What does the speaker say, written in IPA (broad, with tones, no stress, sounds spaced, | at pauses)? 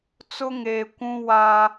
t͡s ʊ˦ ŋ eː˨ kʷ ũ˦ w aː˦